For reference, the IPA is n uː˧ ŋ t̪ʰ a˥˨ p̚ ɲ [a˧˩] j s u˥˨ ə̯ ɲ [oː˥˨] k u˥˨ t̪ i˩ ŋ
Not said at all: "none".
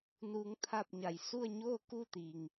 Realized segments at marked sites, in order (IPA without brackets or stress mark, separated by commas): a˧˩, oː˥˨